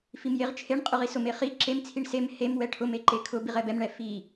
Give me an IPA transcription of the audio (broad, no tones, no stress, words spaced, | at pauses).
fimjeʁt͡ʃʰeɳ qʼʊʁisʊm eχi ǁem t͡sʰiɳsem hem wɛʈʰʊm eǃekʰʊ biʁɛbɛm ɳɛfi